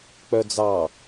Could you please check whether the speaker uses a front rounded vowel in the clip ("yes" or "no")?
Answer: yes